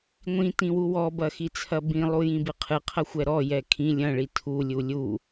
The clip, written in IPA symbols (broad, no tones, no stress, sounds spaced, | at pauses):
ŋʷ ĩ t ĩ w u w ɔ b ɐ x i t͡sʰ ɐ b ĩ lˠ u j ĩ b ɨ qʰ ɨ qʰ ɐ xʷ ɛ ɾ ɔ j ɛ kʰ ĩ lʲ ɐ̃ ɭ i tʰ u lʲ u lʲ u